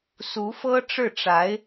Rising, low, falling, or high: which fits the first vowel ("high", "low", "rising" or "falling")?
rising